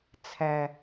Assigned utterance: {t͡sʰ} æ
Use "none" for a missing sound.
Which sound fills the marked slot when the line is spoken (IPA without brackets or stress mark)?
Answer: t͡sʰ